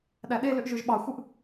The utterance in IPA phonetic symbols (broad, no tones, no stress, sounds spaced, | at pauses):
ɗ æ ɗ e l ø ʔ ʒ ø ʒ ɓ ɑ xʷ ɯ ʔ